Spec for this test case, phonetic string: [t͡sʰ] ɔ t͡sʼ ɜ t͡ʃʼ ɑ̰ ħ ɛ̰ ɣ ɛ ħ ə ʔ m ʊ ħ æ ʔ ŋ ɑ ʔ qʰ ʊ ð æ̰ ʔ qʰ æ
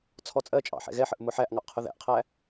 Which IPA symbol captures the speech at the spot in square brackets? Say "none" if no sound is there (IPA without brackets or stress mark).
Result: t͡sʰ